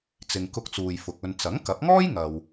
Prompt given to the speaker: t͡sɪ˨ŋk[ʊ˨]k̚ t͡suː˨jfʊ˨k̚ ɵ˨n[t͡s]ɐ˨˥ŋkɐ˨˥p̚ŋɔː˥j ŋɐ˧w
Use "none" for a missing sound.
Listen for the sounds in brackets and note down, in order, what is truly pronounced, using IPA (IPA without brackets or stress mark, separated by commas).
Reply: ʊ˧, t͡s